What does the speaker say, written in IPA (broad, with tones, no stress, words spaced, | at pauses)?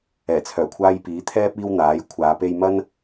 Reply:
ɛː˨˩t͡sʰœː˨˩kʷʰaː˥jpiː˨˥ t̪ʰɛː˥p̚ iː˥wn̪aː˨˥jkʷʰaː˨˧ pe˧jmɐ˥n